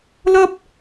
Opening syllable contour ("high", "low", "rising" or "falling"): high